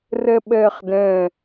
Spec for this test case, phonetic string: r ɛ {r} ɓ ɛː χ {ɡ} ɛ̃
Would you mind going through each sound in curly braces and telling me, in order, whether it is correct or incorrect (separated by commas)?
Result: incorrect, incorrect